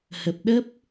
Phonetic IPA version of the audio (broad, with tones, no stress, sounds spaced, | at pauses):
h ə˨˩ p̚ ɗ ə˦˥ p̚